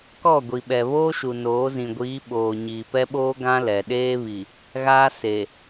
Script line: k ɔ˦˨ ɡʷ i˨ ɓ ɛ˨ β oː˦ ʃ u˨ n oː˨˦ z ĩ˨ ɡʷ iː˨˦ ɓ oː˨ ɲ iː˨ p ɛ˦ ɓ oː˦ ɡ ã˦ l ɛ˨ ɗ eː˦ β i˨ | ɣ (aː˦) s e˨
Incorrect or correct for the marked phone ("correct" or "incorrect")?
correct